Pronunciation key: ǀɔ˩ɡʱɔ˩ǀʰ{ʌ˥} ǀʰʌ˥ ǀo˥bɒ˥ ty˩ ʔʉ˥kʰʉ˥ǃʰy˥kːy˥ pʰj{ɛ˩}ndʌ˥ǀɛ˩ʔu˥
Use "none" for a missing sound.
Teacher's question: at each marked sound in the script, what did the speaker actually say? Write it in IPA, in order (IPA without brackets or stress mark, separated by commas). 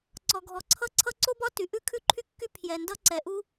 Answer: ʌ˥, ɛ˩